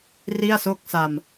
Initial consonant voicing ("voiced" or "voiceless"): voiced